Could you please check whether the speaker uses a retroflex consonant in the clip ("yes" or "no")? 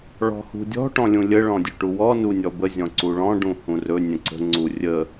yes